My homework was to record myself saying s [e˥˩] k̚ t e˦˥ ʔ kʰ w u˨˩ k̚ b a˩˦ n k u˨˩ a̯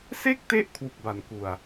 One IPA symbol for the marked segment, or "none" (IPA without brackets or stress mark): e˥˩